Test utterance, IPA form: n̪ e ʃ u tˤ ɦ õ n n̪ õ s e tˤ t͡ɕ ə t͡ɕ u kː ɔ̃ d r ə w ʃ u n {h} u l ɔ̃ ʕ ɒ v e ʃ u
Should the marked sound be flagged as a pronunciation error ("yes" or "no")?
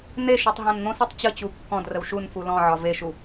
yes